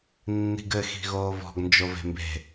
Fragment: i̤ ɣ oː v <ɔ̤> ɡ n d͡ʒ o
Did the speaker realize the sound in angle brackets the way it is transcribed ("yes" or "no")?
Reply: yes